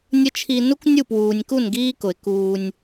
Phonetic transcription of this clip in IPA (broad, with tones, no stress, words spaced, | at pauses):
nʲə˦t͡ʃʰi˧ nu˦knʲu˦˨pwuː˨nʲku˦˨n ɡiː˦kʊ˨ɪ̯ kuː˧nʲ